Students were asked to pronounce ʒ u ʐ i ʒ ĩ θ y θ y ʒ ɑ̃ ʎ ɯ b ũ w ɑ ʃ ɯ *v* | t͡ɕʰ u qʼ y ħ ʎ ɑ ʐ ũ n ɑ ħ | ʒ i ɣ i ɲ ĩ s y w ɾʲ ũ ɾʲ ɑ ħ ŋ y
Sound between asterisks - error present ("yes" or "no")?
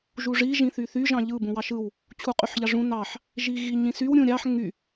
yes